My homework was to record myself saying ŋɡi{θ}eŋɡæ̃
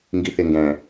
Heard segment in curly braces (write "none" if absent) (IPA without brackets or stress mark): θ